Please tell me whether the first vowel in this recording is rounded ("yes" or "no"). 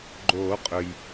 yes